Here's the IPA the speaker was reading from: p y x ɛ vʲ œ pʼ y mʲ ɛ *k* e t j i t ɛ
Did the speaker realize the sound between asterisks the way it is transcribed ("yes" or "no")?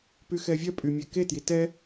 yes